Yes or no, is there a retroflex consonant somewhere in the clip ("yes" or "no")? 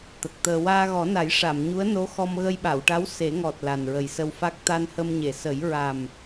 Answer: yes